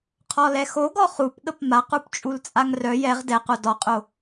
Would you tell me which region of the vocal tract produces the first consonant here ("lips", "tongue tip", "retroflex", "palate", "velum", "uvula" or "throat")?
uvula